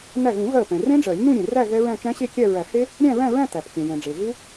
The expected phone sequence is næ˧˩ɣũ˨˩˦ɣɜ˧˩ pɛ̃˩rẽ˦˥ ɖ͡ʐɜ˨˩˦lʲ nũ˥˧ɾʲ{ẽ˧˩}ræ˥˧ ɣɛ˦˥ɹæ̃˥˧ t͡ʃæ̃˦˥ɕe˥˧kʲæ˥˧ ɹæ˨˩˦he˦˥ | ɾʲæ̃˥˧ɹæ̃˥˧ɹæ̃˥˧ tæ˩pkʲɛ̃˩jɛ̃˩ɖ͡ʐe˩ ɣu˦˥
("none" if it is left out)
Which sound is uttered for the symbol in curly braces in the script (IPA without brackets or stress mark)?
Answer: ẽ˩